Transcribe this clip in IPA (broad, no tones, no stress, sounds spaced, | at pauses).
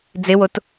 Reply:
d͡z ɪ w o t